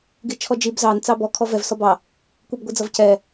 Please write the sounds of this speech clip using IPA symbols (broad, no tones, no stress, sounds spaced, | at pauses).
ɡ i t͡ʃʰ ɔ d͡ʒ i b z ɑ n t͡s ɑ b ɔ kʰ ɔ v ɛ v s ɔ b ɑ | kʷ i b ɡʷ i d͡z ʌ v c ɛ